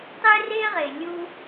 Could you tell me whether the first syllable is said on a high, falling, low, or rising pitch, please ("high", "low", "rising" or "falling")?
high